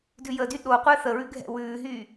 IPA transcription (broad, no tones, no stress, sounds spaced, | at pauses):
d ʉ j ə d y ɗ o qʷ ɛː θ ə ɹ ʉ ɡʱ ɛ̰ w ʉː ɦ yː